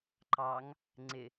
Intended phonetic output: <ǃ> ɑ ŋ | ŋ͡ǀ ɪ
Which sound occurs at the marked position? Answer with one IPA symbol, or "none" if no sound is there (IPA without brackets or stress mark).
ǃ